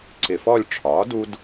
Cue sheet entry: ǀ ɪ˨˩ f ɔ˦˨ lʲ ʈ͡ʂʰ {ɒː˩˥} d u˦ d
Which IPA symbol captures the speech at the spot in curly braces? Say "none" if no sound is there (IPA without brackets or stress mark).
ɒː˩˥